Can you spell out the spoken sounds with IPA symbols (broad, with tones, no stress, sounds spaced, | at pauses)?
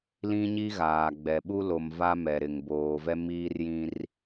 l ĩ˦ ɲ i˦ ɣ aː˨ ɡ͡b ɛ˨ ɓ u˦ l o˨ m v a˦ m ɛ˨ ɾ ɪ˨ ŋ b oː˨ v ɛ˦ m iː˦ r j ĩ˦ r